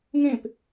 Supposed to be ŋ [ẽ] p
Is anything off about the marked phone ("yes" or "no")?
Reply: no